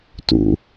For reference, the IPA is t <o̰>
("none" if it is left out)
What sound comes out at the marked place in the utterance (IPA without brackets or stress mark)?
ṵ